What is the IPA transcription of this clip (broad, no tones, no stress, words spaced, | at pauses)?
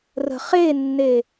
rə̤ χenːe